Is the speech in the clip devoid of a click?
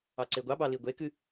no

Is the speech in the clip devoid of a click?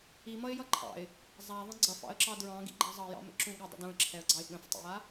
no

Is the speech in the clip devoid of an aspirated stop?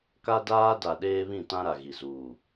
yes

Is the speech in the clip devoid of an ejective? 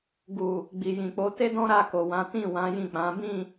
yes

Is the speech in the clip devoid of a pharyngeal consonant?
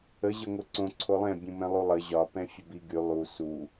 yes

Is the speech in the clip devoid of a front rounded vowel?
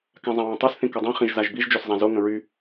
no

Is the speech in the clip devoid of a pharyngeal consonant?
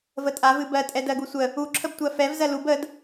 yes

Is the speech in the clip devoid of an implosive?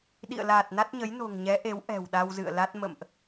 no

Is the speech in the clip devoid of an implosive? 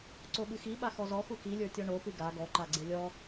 no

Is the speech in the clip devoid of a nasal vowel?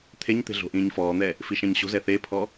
no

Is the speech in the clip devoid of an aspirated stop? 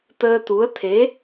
no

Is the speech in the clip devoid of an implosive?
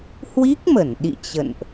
no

